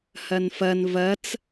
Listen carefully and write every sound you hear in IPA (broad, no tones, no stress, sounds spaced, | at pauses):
h ɐ n f ɐ n v ɐ t͡s